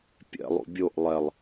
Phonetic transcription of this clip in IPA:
pʲ ɛ̰ lˠ ṵ bʲ o ʔ lˠ ɛ lˠ

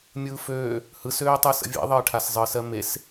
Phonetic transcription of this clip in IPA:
mʲ ɯː f øː | h ɯ s øː tˤ ɯː s ə̰ vʲ ḛ ðˤ əː ʈʰ a s zˤ ɯː s ɜ m e s

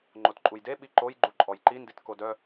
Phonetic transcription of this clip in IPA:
ŋ͡ǃ o t ǃʼ u j d e ɓ i ǃ o j ɡ͡ǃ u ǃʼ ɔ j ǃ i n d i t k o d œ

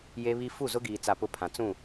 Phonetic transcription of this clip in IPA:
j e˦ β i˦ f u˦˨ z ʊ˦ ɡ iː˨ t͡s a˨ p ʊ˦ pʰ ã˨ t͡s ũ˦˨

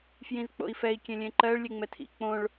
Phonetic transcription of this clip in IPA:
f j ĩ z k͡p o̰ i̯ f ɛ i̯ kʲ ẽ lʲ ẽ ǃ ɜ ɭ lʲ e ŋ͡m ɛ tʰ ḭ k͡p õ ɭ

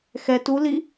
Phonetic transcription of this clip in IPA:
x ɛ t u l i

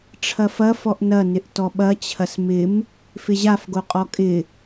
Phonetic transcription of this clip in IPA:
ʈ͡ʂʰ ɐ f ɐ f ɔ ʔ n ɐ n ɪ ʔ t ɔ ɓ ɐ t͡ɕʰ ɐ s m ɪ m | f ɪ ʑ a f ɡ o qʼ ɔ kʼ ɪ

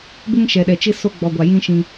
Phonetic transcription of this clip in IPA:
b ɪ˦ ŋ ʃ ɛ˨ ɗ ɛ˨ t͡ʃ ɪ˦ s o˦ ɡ͡b ɔ˨ ɡʷ a˨ j ĩ˦ ʃ ĩ˦

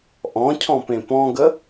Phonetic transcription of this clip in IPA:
ʔ ɔ̃ cʰ ɔ̃ p ẽ p ɔ̃ ɡ ə

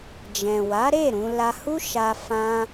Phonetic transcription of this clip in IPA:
d͡ʒ ɛ̃˨ w a˨˦ ɾ e˦˨ ɾ ũ˧ l a˧ h u˦ ʃ a˧ f ã˧

